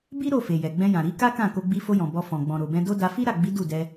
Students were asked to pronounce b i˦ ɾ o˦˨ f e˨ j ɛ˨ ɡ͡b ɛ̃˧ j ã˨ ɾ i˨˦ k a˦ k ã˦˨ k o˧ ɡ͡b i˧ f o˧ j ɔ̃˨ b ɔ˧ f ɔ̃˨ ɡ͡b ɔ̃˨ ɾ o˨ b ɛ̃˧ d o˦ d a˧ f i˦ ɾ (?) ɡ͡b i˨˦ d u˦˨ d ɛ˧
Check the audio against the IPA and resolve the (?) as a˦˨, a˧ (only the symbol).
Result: a˦˨